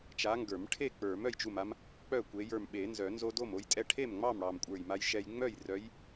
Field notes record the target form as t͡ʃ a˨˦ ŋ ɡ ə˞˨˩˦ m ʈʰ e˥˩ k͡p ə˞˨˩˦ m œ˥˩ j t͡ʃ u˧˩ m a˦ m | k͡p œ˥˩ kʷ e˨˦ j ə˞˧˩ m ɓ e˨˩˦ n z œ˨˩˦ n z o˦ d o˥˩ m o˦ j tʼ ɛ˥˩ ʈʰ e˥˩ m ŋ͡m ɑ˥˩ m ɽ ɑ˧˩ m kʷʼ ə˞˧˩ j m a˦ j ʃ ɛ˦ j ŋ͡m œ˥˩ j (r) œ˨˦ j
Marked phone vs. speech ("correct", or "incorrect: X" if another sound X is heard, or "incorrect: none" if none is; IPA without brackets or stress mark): correct